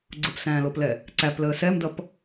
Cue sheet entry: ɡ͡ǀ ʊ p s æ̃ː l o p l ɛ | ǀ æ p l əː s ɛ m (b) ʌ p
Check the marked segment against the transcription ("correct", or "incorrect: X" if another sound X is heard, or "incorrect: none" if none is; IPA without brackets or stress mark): incorrect: d